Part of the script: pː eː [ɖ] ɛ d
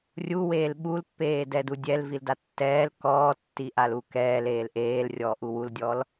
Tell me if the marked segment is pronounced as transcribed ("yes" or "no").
no